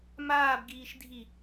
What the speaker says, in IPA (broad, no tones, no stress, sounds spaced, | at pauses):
m aː b ɡ iː ʃ dʱ i